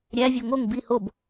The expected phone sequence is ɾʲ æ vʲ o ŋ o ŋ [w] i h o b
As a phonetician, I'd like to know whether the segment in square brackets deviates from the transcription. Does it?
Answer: yes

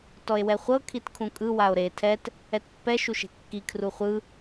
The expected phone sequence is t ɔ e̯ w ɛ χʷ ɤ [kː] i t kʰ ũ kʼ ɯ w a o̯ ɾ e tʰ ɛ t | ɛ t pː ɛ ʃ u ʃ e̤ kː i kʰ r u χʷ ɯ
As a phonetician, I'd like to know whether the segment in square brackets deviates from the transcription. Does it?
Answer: yes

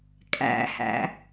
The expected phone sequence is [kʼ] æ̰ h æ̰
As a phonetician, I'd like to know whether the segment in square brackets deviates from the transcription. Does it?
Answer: no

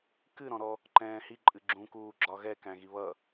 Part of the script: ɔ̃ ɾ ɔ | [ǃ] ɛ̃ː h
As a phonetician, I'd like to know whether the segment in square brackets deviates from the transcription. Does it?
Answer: no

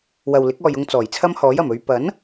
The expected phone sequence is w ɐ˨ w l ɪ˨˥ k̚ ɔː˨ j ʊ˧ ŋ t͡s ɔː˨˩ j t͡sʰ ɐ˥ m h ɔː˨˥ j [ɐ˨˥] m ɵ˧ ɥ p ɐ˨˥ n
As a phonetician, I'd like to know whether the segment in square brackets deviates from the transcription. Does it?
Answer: yes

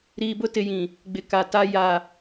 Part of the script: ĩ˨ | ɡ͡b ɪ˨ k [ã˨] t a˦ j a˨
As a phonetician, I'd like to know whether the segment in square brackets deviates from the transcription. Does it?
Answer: yes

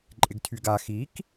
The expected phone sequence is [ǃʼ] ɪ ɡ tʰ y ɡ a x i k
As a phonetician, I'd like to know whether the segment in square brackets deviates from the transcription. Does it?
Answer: no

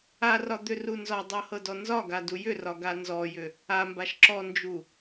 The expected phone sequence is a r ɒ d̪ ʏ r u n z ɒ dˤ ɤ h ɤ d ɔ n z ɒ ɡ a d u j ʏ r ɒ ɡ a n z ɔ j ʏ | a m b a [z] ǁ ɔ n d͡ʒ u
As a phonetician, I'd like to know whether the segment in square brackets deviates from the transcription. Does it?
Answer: yes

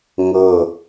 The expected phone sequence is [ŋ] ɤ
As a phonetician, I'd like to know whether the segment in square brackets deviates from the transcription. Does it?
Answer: no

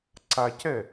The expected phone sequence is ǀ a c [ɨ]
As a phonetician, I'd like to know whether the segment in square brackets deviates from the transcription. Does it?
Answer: yes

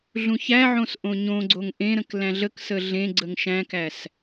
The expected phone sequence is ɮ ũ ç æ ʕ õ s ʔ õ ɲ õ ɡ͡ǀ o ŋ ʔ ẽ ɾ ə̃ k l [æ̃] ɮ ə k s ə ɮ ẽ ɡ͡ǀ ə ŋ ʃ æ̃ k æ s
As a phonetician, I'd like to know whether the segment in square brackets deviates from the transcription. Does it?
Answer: no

